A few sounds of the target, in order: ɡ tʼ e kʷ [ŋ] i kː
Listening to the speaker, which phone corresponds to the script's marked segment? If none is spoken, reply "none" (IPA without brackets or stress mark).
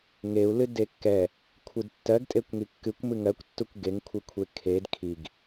ŋ